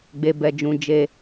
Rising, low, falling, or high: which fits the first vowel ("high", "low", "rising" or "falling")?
low